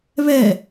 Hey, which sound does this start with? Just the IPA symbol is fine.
β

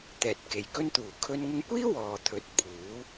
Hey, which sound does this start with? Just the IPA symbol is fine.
t̪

